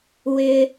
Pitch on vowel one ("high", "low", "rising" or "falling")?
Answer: high